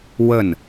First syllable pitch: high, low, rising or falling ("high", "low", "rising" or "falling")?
falling